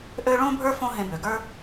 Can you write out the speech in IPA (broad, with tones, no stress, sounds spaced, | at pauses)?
ʔ ø˥ ɭ õ˥ bʱ ə˞˥ f õ˥ ɦ ẽ˧ b ø˩ ɡ ə˞˥